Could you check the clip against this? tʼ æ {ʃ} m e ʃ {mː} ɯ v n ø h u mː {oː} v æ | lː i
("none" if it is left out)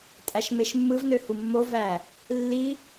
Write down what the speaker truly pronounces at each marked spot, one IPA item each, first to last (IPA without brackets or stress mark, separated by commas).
ʃ, mː, o